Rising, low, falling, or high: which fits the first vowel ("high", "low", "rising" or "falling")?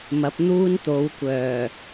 rising